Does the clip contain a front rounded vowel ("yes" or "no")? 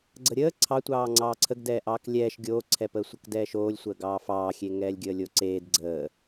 no